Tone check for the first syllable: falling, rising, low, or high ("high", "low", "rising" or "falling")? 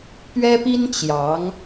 high